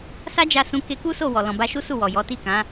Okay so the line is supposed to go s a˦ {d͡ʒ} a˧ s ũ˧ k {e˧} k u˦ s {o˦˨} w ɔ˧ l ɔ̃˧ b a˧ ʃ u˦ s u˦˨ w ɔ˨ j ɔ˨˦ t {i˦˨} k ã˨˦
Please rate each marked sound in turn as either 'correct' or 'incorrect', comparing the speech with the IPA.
correct, correct, correct, correct

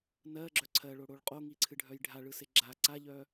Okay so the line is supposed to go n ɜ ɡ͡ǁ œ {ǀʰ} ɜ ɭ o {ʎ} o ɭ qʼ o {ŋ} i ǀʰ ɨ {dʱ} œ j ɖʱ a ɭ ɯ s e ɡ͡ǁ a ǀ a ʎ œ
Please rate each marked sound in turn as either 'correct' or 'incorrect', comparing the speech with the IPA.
correct, incorrect: ɽ, correct, incorrect: ɖʱ

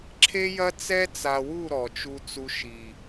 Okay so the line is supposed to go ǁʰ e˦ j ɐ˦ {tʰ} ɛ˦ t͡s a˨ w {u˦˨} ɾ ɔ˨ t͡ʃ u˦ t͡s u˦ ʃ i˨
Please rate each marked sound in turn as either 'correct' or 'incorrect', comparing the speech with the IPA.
incorrect: t͡s, correct

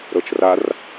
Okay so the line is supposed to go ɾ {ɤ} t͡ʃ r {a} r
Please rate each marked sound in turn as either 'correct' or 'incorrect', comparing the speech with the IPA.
correct, correct

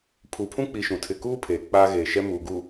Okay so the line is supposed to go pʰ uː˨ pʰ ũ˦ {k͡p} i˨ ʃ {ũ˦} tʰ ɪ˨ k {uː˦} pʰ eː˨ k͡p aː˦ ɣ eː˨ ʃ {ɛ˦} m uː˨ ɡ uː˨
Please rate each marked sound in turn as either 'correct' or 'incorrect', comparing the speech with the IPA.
correct, incorrect: ũ˨, correct, correct

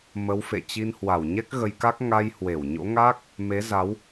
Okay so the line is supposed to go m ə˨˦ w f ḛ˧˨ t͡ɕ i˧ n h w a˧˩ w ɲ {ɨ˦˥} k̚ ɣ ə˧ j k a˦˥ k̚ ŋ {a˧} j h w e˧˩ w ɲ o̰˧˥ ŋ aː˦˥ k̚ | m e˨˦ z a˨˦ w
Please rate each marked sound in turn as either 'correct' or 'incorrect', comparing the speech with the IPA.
incorrect: ɛ˦˥, correct

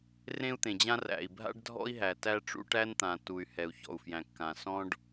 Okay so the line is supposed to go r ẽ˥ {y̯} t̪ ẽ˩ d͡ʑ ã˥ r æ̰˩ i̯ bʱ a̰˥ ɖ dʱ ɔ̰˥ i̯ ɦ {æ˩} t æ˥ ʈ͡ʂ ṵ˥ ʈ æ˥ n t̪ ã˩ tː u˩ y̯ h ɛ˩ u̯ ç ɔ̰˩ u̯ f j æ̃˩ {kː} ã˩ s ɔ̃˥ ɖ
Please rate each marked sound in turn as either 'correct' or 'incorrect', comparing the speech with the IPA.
incorrect: u̯, correct, correct

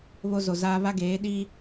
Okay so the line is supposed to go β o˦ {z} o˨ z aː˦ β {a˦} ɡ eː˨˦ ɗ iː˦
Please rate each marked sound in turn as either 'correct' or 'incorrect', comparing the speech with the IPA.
correct, correct

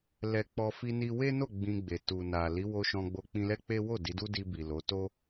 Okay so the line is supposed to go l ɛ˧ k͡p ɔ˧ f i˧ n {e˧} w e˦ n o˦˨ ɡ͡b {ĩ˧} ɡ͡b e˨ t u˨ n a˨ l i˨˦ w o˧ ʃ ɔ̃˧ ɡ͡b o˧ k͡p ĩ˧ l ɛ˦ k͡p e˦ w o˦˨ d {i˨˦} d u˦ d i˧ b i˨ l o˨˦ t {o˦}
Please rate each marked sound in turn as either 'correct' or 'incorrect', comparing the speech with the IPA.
incorrect: i˧, correct, correct, correct

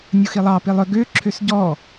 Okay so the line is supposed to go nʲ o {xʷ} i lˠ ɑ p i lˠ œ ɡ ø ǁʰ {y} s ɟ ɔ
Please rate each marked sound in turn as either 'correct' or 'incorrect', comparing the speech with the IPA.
incorrect: x, incorrect: ø

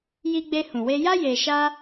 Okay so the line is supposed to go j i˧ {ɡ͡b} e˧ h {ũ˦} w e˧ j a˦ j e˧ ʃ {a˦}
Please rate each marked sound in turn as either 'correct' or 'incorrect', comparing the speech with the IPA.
correct, incorrect: ũ˨, correct

